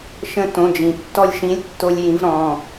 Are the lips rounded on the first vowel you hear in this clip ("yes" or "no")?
no